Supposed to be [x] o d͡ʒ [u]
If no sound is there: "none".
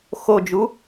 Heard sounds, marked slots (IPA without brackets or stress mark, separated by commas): x, u